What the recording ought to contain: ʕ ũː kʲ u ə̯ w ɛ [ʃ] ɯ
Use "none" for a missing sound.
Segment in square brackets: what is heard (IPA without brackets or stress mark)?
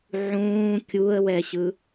ɕ